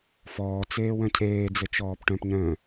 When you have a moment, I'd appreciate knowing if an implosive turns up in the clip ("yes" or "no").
no